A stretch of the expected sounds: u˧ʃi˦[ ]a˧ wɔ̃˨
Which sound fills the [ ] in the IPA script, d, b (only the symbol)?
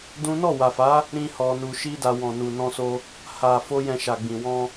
d